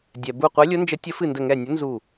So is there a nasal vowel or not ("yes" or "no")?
no